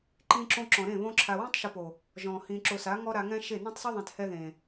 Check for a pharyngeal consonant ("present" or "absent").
absent